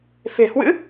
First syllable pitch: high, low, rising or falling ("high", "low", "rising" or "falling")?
low